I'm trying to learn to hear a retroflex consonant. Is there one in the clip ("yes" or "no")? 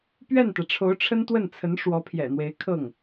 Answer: yes